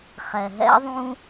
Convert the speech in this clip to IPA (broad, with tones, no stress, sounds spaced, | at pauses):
χ ɛ˨ ɦ ɛ̰˦ ðˤ ũ˦